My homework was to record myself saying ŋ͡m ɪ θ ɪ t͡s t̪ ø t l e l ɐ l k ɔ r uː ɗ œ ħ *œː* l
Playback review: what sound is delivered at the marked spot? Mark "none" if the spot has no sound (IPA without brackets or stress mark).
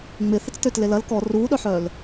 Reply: œː